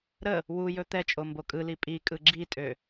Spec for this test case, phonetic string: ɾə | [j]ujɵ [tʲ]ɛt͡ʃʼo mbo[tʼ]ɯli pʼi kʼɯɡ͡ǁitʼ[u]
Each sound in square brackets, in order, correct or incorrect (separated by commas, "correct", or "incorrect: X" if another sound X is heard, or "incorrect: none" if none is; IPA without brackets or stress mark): incorrect: w, incorrect: t̪, incorrect: kʼ, incorrect: ø